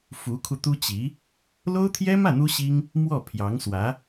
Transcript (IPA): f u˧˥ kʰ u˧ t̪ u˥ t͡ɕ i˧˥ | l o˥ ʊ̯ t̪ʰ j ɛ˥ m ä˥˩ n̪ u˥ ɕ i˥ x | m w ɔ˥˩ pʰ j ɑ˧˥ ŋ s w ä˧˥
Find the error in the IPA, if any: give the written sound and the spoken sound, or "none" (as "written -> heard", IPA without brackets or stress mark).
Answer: x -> ŋ